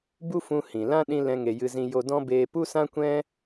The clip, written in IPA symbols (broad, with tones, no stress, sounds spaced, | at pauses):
b u˦ f ũ˧ h ĩ˨ l ã˦ ɗ ĩ˦ l ɛ̃˦ ŋ e˧ j ɨ˦ z ĩ˦ j o˧ d ɔ̃˦ b eː˧ p u˦ s ã˦ kʷ ɛ̃˦